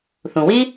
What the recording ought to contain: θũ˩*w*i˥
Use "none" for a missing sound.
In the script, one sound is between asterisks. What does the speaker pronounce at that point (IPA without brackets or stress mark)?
w